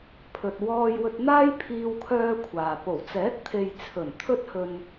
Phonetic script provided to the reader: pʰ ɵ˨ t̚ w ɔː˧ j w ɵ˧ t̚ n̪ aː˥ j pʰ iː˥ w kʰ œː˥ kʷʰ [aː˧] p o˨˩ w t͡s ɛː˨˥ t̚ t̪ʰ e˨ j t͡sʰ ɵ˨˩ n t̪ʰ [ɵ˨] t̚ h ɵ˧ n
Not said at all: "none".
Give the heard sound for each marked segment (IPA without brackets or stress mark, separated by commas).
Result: aː˨, ɵ˥